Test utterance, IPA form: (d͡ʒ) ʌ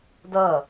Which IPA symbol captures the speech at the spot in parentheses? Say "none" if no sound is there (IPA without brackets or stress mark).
d